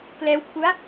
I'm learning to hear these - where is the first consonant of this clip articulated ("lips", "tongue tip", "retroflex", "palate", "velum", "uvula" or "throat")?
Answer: velum